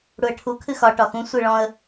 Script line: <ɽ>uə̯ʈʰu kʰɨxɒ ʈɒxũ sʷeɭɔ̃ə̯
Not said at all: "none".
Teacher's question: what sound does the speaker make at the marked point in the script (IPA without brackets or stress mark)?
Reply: ɽ